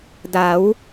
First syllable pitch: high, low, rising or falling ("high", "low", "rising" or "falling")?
rising